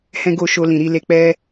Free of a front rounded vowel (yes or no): yes